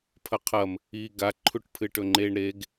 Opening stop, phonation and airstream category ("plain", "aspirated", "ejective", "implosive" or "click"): aspirated